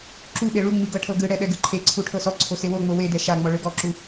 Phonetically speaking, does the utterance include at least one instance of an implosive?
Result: yes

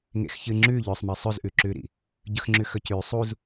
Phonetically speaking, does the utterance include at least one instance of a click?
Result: yes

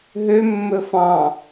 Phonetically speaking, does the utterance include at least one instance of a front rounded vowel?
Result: yes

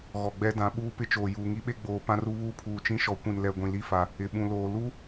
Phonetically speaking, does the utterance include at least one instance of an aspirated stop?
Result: yes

